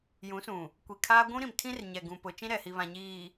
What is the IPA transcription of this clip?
jũ˨˦sũ˨ | kʷi˨kʰaː˦ ɡʷũ˦ ɾĩ˨mtʰĩ˦r ɲɛ˨ɡũ˨pʊ˨ t͡ʃĩ˦ɾɛ˨hi˨βã˨ ɲiː˨

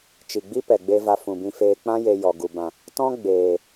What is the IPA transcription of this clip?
t͡ʃi˨ɡ͡bi˦pɛ˨ɡ͡be˧ va˧fũ˨bĩ˧feː˧ k͡pã˦je˧jɔ˨ ɡu˨bã˨ | tɔ̃˦ ɡ͡beː˨

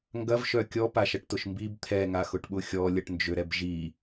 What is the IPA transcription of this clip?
ŋɡɐvʃœ kʲɔpaʃɐʈtʊʃ mbib t̪ʰɛŋaxʊʈɓʊ xʲɔlʲɐʈnd͡ʒøɾɛb ʒi

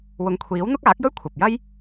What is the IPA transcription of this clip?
wʊ˨˧ŋkʷʰiː˨˥w n̪ʊ˥k̚aː˨˥k̚jɵ˥ɥ kʷʰɐ˨p̚jɐ˥j

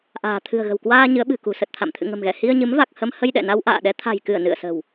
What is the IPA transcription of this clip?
ʔa̤ː˨˩ t̪ʰɨ̤˨˩ə̯ɣə̤˨˩wkwaː˧ ɲɨ˨˦ə̯ɓɨ̤˨˩kṳ˨˩ sə˨˩t̚t̪ʰa̰˧˨m t̪ʰɨ̰˧˨ŋə̤˨˩mɣɛ˧˩ hi˧ə̯ɲɨ˨˦mva˨˩k̚hə˧m hə˧jɗɛ̰˧˨na˧w ʔa̰ː˧˨ɗɛ˨˦t̪ʰa̤˨˩jkɨ˧˩ə̯ nɨ̰˧˨ə̯sə̤˨˩w

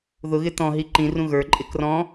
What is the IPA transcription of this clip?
ðʊɣɪ tɔ̃ɦi ǃĩrũ ɣə˞ǃʼɪ krɔ̃

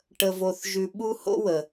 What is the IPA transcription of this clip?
ʈə˧vo˧θʒʉ˧ ɓu˥ho̰˥wə˩

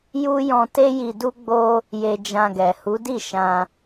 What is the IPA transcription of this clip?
ju˦ jɔ̃˧te˦ji˧du˦ ɡ͡bo˦ | je˧d͡ʒã˧ɡɛ˨ hu˨˦di˦˨ ʃã˧

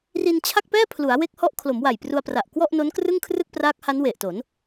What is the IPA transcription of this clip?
ri˧nt͡ɕʰa˥˩k̚pɛː˥˩pʰlu˩˦a̯ we˦˥k̚hɔ˦˥ʔ kʰlo˩˦mwa˨˩jpru˧a̯pra˨˩ʔ kwɔ˥˩ʔno˦˥nkrɯ˥˩ŋkʰrɯ˥˩k̚ praː˦˥k̚ha˦˥nwe˨˩ʔto˩˦n

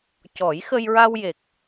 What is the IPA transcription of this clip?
cɔ˨˩˦jxə˧jɹa˧wje˨˩k̚

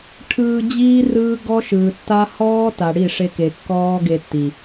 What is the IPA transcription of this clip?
ʈʰɯː˧d͡ʑiː˦ rɯː˦ ɡɔ˦ʃɯː˨tːa˦ hɔː˦ta˨ ɽi˦˨ʂe˧ke˨ kːɔː˦ɡe˧tːi˨

